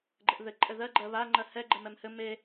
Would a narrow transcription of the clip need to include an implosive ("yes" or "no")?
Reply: no